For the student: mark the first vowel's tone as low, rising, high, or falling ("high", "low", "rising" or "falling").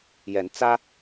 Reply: rising